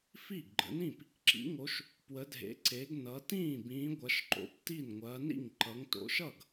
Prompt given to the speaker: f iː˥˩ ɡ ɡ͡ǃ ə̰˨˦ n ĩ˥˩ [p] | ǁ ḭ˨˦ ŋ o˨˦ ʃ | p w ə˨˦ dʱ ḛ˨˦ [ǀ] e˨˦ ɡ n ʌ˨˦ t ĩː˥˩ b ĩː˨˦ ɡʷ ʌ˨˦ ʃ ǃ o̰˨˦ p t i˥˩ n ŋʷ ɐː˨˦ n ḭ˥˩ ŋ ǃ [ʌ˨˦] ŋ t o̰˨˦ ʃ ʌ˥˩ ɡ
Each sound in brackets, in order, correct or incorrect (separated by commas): correct, correct, correct